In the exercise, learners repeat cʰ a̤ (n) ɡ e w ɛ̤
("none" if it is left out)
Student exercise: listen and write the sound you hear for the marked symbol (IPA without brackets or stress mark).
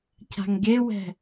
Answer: ŋ